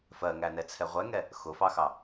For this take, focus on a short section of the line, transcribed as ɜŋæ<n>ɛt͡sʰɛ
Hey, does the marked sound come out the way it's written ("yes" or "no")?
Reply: yes